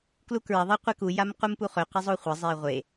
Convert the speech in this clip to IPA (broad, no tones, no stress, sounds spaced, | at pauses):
k l u k ɹ ɐ ðˤ e qʷ e k u j a m q u m p u χ ɵ q e zˤ o χʷ ɐ zˤ e i̯ ʁʷ e